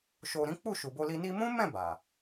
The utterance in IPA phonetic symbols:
ʃo˧ɾĩ˦ k͡pu˦˨ʃu˨bo˧li˧ ni˧mũ˦mɛ̃˦˨ ba˨

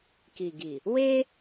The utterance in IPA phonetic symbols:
ki˨ɡi˨ | we˦

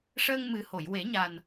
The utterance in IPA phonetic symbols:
ʂəː˧ŋmɨ˨˩ho˨˩˨j we˨˩˦ɲa˨˩n

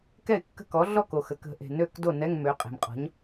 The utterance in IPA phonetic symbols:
kɛ˥˩ɪ̯kːə̤˥˩kɔ˩˥ ɮɔ˥˩ko˩xə˩kə̤˨˩˦ ʔe̤˩nø˥˩kdo˥˩nɛ˧˥˧ŋ mø˩˥qʼe̤˩mqʼɔ̤˩˥ɲ

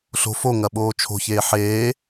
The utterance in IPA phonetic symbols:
ɬo̤ foŋɐɓoː t͡ʃʰo̤çeː ħeː

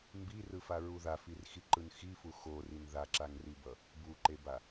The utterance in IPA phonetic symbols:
mbirɯfaɹu ðafirxiǃɯn xifu xorin ðaǁaŋribʌ | buǃeba

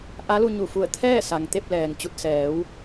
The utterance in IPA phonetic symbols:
ʔa˧˥lu˧ɲu˧˩fu˧˩ə̯ t̪ʰɛː˥˨ sa˩ŋt̪e˥˨p̚lɛː˩ŋ t͡ɕu˧˩t̚sɛː˩˧w

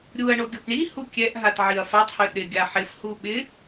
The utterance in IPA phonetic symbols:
ɾʲuɐ̯ɳo ɡʲopɳihu kʲɛʔɦat ʕiɐ̯fatˤhø ɗɪ ɡʲaħɪfhu ɓɪ

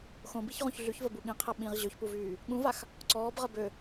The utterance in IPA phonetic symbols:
xõbiçʁõç ɮyçvəbu ɠĩqʰɛ ɓĩʁ ʑøçpuvyː | ɠũvax | ǀɔːbʁə bø

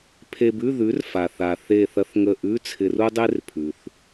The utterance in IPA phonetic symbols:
pʰe˧bʉ˧˥˧ ðʉ˩˥rfa˩θa˩ θe˧˩θɐ˧θ ŋə˧˩ʔʉ˧˥˧ t͡sʰɪ˧ru˥dˤe˥rpʰʉ˩θ

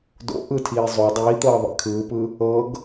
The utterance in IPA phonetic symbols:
do̰ ʔɯtʰiː zˤo dˤiːt̪ɤː ðˤḛkʰɯːpɯ | ɤɡ

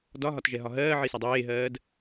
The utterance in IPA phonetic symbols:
dɒɦɒtʒɛɦɒ ɦɜːʕisɒ dˤeːɦɜːd

